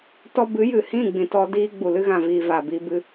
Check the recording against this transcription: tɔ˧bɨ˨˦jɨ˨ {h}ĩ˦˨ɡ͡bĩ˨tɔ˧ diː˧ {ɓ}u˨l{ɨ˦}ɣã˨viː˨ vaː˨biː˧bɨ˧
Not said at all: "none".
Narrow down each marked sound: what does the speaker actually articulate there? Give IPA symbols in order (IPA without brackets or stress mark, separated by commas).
h, ɡ͡b, ɨ˧